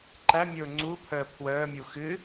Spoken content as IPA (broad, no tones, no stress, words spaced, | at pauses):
ǃæmʲʊː ŋ͡ǀupʰəː pʰwəːmʲu xɨ